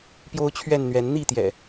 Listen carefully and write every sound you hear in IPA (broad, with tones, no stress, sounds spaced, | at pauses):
p j o˦ ʊ̯ t͡ɕʰ ɥ ɛ˥˨ n n̪ ɥ ɛ˨˦ n n̪ i˥˨ t̪ j ɛ̰˨˩